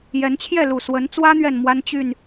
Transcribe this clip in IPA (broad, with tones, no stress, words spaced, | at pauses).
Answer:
jɛ˨˦nt͡ɕʰjɛ˥˨ lu˨˩swə˨˦n t͡swä˦n̪ɥɛ˨n mwa˦n t͡ɕy˥˨n